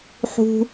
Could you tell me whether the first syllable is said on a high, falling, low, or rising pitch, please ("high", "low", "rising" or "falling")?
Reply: high